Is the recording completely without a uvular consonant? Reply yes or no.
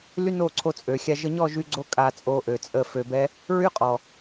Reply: no